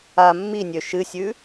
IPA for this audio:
a mːinʲø ʃɨsʲʉ

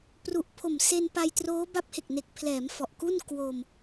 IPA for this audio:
pru˨˩ʔpʰo˨˩m se˧npa˧jtroː˦˥ ba˦˥p̚he˨˩k̚ne˨˩k̚pʰlɛː˩˦m fɔ˨˩ʔku˥˩n kwo˧m

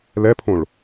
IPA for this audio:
lɛpʰõɭ

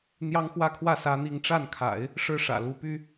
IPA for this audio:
n̪jɑ˥ŋxwä˥˧kʰwä˥˩ sä˥n̪i˥˧ŋ ʈ͡ʂa˥˩nkʰa̰˨˩˦ɪ̯ | ʂɻ̩˥˩ʂä̰˨˩ lu˧˥py˥

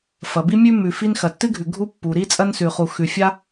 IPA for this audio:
fɐ˩bi˥mʲʉ˥ mʉ˩fi˥n xɐ˩tːɨ˥ɡʱʉ˩ ɡʱu˥ pːu˩ɾi˥ t͡sʼɐ˥nsʉ˩χu˩ xʉ˩fʲa˥

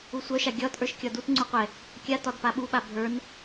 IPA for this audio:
usʷœʃa ɡʲɒt ʔə˞ʃkʲɒdut ŋ͡ǀuqʷɛ | kʲatɒdpa ɓuɓa bʱə˞n

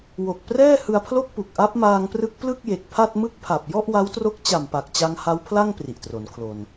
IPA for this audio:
wo˨˩k̚ prɛː˥˩hɯ˧a̯pʰlo˥˩k̚pu˨˩k̚ ʔa˦˥p̚maː˧ŋprɯ˦˥k̚ plɯ˥˩k̚je˨˩k̚pʰa˥˩t̚ mɯ˥˩k̚pʰa˨˩p̚ jɔ˥˩ʔwa˦˥wtro˦˥k̚ t͡ɕa˨˩mpa˨˩k̚t͡ɕa˧ŋ ha˦˥wpʰla˥˩ŋ pri˨˩ʔtro˩˦nkʰlo˧n

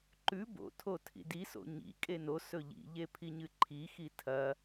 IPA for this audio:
ǃʉ bo̰tʰo tʰḭdiso̰ ɲḭ kʼenosɵ ʎḭʎe pʰiɲɨǃʰixi tʰɐ

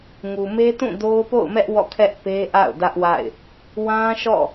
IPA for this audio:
ŋu˨me˦tũ˦˨ do˦ʊ̯po̰˦˨ʊ̯mɛ˦ʔ wɔ̰˦˨kʰɛ˦ʔ pe˦ʔa̰˦˨ʊ̯ dä˦ʔwa̰˦˨ɪ̯ | wã˦ʃɔ̰˦˨

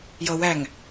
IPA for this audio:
jʌwæŋ

